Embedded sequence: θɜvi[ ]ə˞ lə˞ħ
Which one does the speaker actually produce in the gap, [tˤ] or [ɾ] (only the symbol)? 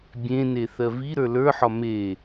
ɾ